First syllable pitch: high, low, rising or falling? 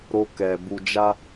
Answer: high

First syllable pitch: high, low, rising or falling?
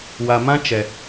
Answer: low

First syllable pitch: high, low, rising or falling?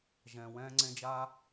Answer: low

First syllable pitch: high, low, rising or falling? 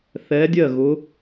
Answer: rising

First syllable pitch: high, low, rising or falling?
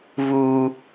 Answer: high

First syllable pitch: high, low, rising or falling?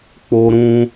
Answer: high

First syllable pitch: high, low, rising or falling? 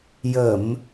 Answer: low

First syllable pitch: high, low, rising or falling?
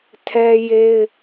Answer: high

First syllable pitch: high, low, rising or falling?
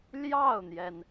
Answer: falling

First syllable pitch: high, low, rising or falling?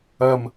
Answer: low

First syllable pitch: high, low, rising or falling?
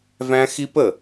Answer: high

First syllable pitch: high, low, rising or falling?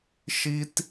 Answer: high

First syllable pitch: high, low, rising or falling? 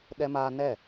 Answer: high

